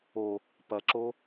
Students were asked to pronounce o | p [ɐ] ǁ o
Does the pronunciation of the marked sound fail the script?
no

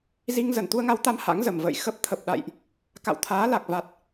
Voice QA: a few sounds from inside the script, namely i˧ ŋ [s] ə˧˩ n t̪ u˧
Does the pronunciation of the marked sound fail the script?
yes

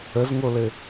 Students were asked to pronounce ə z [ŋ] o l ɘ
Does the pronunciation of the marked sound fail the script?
no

